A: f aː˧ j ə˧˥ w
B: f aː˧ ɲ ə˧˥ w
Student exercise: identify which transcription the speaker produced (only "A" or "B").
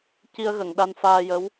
A